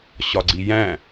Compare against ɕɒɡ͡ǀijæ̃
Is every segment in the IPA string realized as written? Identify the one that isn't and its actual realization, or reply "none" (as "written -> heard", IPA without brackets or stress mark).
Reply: none